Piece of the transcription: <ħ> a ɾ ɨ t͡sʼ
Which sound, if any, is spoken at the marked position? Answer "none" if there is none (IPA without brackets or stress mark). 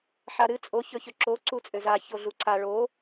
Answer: ħ